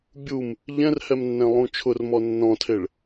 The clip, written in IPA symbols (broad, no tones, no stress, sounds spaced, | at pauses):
bʲ u m | ʎ ɛ̃ r h ɛ m nː ɛ̃ lˠ ũ t͡ʃʰ ʊ r m ɔ nː ɔ̃ tʰ e ɭ